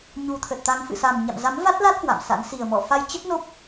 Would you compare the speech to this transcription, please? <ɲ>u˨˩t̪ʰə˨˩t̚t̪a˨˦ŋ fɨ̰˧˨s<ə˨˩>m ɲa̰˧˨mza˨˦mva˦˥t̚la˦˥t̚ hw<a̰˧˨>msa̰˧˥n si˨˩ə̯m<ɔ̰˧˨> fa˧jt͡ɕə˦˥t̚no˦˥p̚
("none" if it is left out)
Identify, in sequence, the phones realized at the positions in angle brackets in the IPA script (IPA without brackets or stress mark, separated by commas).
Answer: ɲ, a˨˩, a̰˧˨, ɔ̰˧˨